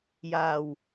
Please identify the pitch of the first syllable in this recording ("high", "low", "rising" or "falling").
low